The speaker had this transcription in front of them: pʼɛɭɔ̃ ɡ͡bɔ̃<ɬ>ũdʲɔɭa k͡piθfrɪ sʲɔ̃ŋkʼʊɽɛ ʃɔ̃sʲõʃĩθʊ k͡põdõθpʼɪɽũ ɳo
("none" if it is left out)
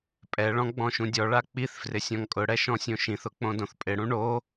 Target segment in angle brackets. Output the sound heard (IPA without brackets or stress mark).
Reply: ʃ